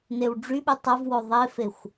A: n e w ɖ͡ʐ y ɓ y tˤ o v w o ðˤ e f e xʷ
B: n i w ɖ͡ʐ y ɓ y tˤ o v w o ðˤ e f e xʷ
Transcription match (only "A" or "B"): A